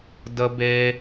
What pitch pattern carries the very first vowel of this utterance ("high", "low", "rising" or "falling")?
high